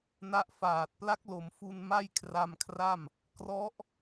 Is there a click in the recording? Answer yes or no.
no